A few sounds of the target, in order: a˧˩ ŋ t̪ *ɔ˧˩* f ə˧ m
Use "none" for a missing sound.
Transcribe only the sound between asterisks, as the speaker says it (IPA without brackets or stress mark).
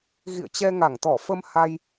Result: ɔ˧˩